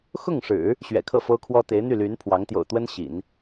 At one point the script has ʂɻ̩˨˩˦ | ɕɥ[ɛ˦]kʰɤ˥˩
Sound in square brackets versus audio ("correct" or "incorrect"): incorrect